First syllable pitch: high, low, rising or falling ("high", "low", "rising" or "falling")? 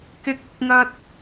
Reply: high